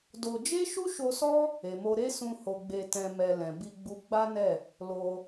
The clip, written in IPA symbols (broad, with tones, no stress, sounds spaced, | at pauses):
d o˧ d͡ʒ e˦ ʃ u˦ ʃ o˧ s ɔ˦ | e˨ m o˧ ɾ e˦ s ũ˧ h o˧ ɡ͡b e˧ t ɛ̃˧ m ɛ˧ l ɛ̃˨ b i˧ ɡ͡b u˧ ɡ͡b a˦ n ɛ˦˨ | l o˧